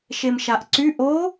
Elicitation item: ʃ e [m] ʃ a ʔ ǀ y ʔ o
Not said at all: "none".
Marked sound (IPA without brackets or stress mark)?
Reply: m